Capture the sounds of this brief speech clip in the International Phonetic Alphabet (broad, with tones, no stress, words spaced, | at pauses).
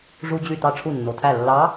ʐu˧d͡ʑy˧˩ tɑ˧˩ʈ͡ʂʰu˧˩nːo˩tʰæ˧˩ lːɑ˧˥